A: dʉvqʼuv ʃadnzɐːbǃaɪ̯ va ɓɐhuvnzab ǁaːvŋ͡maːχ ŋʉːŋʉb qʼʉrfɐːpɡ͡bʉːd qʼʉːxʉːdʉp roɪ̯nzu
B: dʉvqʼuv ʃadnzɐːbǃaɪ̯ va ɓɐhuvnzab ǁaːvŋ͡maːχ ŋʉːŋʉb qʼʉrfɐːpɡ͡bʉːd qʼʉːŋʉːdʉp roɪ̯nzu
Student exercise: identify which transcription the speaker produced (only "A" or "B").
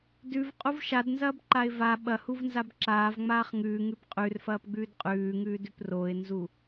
B